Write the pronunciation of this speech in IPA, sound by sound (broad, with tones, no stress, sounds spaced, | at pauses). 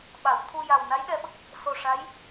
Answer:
ɓ a˨˩˨ w t̪ʰ u˧ j a˨˩ w n a˧˥ j ɗ ɛ˧ ɓ ə˦˥ k̚ | s o˨˩ ʂ a˧˥ j